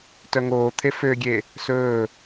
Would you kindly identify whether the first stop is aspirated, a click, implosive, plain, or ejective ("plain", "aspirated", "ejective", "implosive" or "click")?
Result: plain